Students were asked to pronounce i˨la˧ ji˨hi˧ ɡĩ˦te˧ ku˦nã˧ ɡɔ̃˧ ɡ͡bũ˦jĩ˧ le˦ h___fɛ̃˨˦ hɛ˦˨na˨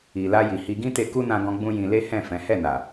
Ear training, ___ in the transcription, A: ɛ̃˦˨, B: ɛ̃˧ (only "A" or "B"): A